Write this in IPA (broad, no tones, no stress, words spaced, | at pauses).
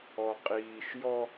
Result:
ɔ qʼiːʃ jɔ